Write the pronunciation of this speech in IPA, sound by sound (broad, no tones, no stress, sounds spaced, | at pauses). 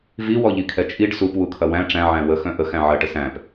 v i w ɔ ʎ i kʰ ɛ t͡ʃʼ i ɖ s u p w u kʰ ɐ w æ̃ ʈ͡ʂ æ̃ ʕ æ̃ w ə x œ̃ ʔ ə x æ̃ ʕ ɐ ʈ ə s æ̃ p